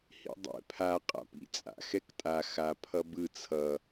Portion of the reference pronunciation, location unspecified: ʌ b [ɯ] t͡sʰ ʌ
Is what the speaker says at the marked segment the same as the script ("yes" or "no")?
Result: yes